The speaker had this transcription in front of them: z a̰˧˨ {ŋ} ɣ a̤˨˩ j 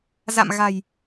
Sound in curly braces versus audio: incorrect: m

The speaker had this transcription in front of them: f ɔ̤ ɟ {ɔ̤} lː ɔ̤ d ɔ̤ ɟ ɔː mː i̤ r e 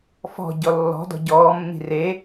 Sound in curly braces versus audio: incorrect: ɔ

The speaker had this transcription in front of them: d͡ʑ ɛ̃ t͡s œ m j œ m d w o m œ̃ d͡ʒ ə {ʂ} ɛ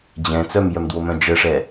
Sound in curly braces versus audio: correct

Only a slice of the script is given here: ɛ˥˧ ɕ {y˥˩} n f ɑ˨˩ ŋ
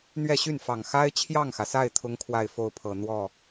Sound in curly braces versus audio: correct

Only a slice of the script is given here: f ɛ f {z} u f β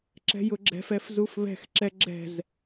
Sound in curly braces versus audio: correct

